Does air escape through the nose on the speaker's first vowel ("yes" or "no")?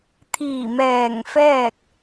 no